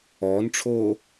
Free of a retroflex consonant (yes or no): no